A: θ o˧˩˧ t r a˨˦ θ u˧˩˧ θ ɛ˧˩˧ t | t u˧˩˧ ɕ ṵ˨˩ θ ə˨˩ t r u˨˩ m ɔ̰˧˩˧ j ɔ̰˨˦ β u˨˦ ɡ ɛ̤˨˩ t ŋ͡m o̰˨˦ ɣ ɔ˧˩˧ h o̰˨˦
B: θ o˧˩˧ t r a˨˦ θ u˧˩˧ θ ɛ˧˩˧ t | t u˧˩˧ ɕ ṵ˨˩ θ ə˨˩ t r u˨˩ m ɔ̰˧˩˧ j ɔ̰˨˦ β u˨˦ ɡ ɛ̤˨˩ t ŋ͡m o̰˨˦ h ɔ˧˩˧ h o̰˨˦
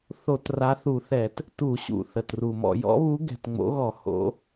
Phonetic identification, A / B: A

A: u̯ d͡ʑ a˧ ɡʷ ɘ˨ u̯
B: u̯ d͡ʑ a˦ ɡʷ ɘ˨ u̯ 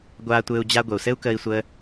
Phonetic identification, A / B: A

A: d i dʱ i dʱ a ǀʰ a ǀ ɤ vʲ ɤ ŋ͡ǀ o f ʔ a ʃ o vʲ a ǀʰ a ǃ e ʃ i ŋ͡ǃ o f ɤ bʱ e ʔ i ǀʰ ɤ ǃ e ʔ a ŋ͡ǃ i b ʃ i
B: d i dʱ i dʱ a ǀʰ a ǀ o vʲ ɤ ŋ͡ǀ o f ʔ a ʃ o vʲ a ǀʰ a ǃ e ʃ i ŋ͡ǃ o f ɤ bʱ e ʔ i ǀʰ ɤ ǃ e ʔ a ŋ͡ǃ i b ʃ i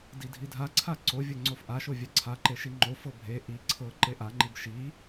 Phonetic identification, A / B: B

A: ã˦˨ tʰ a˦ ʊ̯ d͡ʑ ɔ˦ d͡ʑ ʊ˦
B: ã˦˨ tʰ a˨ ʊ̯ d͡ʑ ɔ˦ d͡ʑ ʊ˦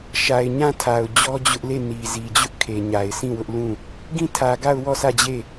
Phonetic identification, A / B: B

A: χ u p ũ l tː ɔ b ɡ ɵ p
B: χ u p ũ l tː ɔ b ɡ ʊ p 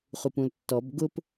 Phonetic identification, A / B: B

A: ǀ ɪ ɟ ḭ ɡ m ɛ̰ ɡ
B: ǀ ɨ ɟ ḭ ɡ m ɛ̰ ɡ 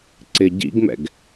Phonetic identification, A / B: A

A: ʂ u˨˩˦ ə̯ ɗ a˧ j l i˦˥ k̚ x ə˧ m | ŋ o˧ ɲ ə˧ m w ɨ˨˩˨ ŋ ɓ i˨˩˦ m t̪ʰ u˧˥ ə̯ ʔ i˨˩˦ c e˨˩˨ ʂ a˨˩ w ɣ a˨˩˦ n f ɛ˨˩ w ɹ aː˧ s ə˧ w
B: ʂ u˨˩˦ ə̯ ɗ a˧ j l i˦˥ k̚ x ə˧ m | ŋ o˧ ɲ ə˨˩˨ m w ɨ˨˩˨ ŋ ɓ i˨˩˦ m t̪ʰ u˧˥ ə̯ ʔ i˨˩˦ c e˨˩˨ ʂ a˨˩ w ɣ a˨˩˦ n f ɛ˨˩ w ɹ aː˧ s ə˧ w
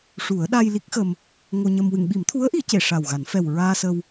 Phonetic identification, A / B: A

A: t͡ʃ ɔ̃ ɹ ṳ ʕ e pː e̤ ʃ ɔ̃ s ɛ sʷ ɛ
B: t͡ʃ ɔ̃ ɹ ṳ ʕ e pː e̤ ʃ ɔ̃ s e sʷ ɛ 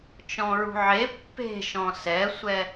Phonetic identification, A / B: A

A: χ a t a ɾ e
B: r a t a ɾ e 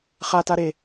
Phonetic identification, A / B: A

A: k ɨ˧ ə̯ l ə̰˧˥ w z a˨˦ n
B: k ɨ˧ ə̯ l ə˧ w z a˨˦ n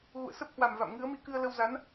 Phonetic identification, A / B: B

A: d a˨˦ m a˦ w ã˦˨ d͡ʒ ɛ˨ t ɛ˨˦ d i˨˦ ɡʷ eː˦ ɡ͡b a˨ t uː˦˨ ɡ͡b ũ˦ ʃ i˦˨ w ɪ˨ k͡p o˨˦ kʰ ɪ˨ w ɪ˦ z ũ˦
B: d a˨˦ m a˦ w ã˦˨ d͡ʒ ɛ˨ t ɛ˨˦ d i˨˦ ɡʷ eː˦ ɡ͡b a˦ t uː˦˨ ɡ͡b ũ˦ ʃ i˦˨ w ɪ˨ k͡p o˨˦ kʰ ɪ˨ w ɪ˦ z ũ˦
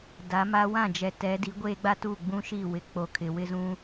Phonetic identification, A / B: B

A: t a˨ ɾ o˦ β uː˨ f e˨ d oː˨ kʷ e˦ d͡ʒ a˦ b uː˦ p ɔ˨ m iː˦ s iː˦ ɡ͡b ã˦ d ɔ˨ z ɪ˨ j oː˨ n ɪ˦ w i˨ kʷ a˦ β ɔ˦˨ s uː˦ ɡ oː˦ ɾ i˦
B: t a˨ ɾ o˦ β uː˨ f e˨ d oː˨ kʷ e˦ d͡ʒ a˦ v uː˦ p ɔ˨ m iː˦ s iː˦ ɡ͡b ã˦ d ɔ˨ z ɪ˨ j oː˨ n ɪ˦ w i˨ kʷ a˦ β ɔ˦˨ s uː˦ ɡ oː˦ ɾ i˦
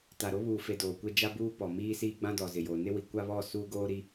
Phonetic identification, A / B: A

